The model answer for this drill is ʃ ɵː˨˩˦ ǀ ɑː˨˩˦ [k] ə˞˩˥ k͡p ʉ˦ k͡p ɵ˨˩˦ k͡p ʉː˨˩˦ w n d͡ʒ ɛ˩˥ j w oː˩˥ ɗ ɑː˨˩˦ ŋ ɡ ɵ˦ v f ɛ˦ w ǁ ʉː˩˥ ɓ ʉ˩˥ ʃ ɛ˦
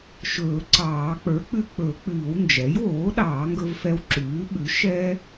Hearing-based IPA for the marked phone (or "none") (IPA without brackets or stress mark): k͡p